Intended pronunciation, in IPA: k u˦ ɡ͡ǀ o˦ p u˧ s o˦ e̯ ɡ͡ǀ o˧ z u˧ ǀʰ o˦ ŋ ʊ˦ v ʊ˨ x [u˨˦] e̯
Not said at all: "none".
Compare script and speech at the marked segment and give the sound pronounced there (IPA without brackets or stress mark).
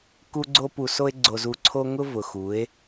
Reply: u˨˦